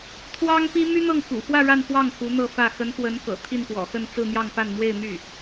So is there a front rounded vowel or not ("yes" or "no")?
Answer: yes